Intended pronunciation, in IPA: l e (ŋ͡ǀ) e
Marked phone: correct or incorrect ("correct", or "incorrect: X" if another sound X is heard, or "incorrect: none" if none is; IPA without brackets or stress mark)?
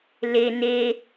incorrect: n